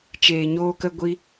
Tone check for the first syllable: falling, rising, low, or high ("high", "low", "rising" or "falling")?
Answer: low